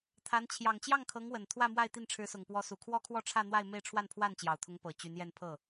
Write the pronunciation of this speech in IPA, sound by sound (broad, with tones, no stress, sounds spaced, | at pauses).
t̪ʰ a˧˥ n t͡ɕʰ j ɑ˨˩ ŋ t͡ɕ j ɑ˥˩ ŋ kʰ ɤ˧˥ ŋ w ə˨˩ n t̪ʰ w ä˥˧ m w a˥˧ ɪ̯ t̪ i˥˩ n ʈ͡ʂʰ ɻ̩˧˥ s ʊ˨˩ ŋ p w ɔ˧˥ s u˨˩ kʰ w ɔ˥ kʰ w ɔ˥˧ ʈ͡ʂʰ ä˥˧ n̪ w a˥˧ ɪ̯ m e˥˧ ɪ̯ ʈ͡ʂʰ w a˥˧ n pʰ w a˥˩ n t͡ɕ j ɑ˨˩ ʊ̯ t̪ʰ ʊ˧˥ ŋ p ɤ˨˩ t͡ɕ y˧˥ n j ɛ˥˧ n pʰ ɤ˥˩